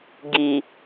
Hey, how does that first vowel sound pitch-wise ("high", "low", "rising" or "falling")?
low